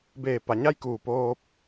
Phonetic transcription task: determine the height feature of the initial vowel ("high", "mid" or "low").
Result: mid